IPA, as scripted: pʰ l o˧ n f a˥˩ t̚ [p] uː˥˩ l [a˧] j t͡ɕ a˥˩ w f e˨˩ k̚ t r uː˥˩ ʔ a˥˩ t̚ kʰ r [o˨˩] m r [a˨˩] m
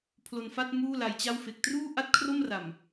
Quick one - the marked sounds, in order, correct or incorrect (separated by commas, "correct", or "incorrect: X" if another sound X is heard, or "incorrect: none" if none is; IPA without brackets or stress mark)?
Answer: incorrect: m, correct, incorrect: o˥˩, correct